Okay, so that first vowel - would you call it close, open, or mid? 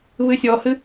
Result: close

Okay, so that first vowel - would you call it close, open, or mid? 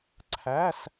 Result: open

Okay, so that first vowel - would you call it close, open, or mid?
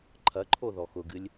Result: open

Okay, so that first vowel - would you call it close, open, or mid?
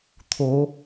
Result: mid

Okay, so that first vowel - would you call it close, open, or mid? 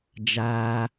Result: open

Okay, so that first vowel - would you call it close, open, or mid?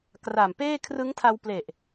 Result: open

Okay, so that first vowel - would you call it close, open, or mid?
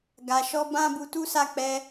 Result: open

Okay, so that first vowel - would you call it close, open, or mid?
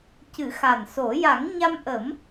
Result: close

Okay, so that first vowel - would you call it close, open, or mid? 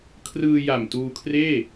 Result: close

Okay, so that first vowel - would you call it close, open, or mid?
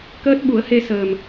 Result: mid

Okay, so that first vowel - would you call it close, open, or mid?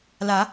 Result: open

